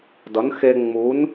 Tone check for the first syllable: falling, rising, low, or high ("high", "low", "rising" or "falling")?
rising